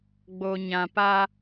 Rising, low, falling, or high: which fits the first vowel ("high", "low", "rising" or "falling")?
low